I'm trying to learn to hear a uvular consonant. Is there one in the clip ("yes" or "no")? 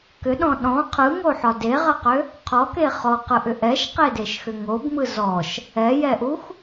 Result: yes